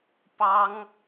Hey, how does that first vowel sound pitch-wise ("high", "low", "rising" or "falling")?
high